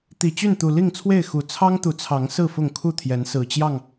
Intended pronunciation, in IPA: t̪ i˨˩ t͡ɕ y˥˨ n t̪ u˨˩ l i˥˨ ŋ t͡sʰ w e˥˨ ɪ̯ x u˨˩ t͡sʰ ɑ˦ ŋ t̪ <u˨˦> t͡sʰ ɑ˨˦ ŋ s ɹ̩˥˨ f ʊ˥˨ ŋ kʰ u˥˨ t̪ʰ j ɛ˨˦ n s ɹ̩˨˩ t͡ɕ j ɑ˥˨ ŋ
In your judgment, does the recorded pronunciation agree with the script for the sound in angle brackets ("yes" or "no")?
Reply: yes